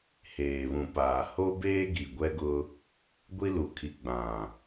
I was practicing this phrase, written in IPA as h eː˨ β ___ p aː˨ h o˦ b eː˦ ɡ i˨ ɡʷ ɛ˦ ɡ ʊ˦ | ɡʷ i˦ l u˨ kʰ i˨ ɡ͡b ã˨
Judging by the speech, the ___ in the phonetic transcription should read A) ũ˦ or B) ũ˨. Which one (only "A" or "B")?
B